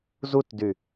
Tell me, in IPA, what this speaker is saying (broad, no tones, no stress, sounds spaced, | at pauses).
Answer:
z u t d y